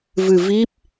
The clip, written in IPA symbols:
v ɨ˧ v i˦˥ p̚

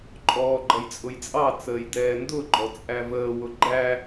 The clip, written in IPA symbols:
ǃʼ ɔː ɡ͡ǃ ʌ j t͡sʼ ʊ j t͡sʼ ɑ t͡s əː j d ɛː n d ʊ ɡ͡ǃ ɔ t͡sʼ æ v əː w ʊ ɡ͡ǃ æ

